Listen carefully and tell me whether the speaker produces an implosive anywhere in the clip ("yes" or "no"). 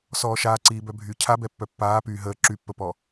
no